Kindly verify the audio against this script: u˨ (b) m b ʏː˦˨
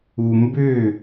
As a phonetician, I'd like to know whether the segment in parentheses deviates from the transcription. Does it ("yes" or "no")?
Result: yes